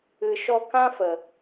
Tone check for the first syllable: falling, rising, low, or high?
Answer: low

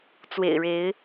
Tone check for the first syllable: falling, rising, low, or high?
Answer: low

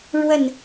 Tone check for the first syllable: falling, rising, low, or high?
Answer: falling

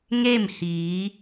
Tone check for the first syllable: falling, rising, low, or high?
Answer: falling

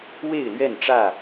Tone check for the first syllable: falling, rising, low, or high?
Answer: falling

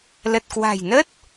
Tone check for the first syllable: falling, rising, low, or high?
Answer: low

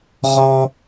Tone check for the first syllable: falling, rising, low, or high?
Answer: high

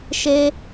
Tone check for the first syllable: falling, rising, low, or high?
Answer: high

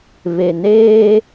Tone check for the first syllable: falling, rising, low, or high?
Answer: low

